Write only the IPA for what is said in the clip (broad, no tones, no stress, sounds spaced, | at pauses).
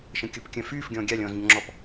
ʃ ə̃ kʲ ʊ p kʲ œ̃ f yː f ɡʲ ɔ̃ː ɡʲ a lʲ ɔ̃ː z ɲ ʊ ŋ͡ǁ ɔ p